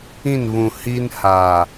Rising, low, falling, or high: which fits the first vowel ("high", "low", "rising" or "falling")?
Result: falling